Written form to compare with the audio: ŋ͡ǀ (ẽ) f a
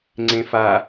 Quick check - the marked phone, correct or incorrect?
correct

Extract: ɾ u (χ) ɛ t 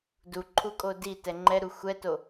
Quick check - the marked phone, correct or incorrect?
incorrect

